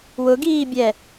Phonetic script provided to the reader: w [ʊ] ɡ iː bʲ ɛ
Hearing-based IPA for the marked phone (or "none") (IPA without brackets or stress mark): ʊ